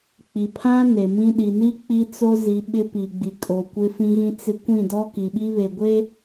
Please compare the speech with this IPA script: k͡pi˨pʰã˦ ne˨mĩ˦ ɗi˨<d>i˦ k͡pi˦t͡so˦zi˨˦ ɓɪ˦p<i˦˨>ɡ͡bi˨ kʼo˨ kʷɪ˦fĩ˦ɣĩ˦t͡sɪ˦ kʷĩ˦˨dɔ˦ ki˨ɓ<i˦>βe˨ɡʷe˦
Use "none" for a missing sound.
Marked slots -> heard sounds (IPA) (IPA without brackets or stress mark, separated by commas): n, i˨, i˦